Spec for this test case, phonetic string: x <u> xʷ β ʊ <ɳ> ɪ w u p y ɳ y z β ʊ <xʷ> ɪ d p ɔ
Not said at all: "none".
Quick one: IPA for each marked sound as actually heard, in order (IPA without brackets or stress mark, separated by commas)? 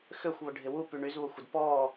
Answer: ø, ɖʱ, xʷ